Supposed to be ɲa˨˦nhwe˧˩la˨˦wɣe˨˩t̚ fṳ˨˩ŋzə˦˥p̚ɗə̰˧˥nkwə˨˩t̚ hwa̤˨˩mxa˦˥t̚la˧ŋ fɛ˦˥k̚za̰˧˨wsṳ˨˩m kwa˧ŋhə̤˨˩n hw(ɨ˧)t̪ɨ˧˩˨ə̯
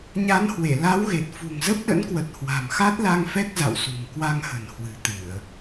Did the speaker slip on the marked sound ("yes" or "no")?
yes